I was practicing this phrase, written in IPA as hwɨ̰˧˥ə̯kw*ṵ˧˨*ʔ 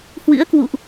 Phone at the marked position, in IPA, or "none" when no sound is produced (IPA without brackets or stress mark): ṵ˧˨